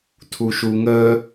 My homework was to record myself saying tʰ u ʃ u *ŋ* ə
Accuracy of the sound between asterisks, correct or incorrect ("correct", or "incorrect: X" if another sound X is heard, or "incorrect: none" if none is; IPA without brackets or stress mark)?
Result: correct